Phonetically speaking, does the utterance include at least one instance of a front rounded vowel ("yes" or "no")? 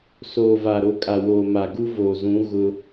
no